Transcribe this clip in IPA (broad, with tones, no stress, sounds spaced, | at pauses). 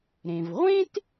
ɾ ẽ˩ v ʁʷ ẽ˥ t